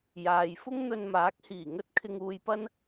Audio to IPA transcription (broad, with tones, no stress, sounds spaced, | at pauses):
j aː˨ j f ʊ˥ ŋ n̪ ɵ˧ n m aː˨˥ k̚ h iː˨˩ ŋ ɵ˥ t̚ kʰ ɪ˧ ŋ uː˧ j p ɐ˥ n